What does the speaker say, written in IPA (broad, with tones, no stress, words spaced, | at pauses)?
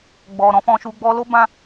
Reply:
ɡ͡bɔ˨ɾɔ̃˧fɔ̃˧ʃu˧ ɡ͡bɔ˧lo˦bã˦